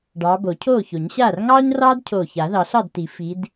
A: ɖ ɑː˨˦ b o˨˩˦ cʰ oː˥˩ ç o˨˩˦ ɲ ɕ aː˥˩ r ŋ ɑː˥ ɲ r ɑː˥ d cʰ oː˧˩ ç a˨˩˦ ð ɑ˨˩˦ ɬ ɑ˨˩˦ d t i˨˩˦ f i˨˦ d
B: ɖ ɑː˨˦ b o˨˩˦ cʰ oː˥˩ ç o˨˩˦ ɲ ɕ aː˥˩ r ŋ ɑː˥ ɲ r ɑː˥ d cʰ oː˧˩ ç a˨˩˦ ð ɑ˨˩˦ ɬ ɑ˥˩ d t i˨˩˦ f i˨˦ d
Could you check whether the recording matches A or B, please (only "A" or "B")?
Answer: B